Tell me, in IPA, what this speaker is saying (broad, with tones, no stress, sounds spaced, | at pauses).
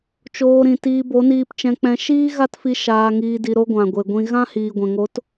t͡ʃ oː˧ ɾ ĩ˨ t iː˧ b o˨˦ n iː˧ p t͡ʃ ɛ̃˧ k͡p ɛ̃˧ ʃ iː˦ ɣ a˦ t f i˧ ʃ aː˧ ŋ iː˧ d i˧ ɾ o˦ ɡʷ ã˨ ɡʷ e˨ ɡʷ ĩ˧ ɣ ã˦ h iː˨ ɡʷ ɛ̃˨ ŋ o˨˦ t